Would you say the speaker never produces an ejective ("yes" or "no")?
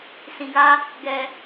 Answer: yes